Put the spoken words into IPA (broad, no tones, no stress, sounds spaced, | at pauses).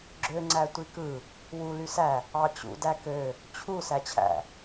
ɡ͡ǁ ø ŋ͡ǀ æ tʷ i k ɯ | w u l y s æ | ɑ t͡ɕ ṵ d æ k ø | t͡ɕʰ u s æ t͡ɕʰ æ̰